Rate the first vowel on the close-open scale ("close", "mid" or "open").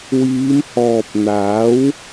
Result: close